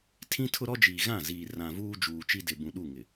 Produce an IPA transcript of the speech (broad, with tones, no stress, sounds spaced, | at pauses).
tʰ ĩ˦ tʰ ʊ˦ ɾ ɔ˦ d͡ʒ iː˨ ɣ ã˦˨ z iː˨ r ã˨ v uː˦ d͡ʒ uː˨ t͡ʃ i˦ d ɪ˨ b ũ˨ ɗ u˦˨ ŋ ɪ˨